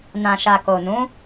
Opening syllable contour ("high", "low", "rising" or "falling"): low